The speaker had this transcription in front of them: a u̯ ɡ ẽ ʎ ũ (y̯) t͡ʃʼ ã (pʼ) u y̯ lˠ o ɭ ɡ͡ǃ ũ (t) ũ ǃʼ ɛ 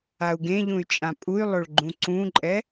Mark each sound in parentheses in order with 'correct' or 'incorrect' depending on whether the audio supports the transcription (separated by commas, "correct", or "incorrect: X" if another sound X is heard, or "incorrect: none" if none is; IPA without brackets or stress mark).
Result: correct, correct, incorrect: ǀ